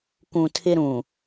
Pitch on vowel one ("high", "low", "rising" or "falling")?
low